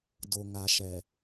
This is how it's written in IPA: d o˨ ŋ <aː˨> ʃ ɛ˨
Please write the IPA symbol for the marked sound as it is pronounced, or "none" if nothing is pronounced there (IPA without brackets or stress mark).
a˨